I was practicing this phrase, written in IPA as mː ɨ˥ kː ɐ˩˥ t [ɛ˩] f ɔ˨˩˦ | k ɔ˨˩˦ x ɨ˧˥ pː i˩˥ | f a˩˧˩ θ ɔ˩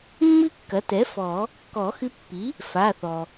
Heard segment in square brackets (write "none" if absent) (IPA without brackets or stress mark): ɛ˩˥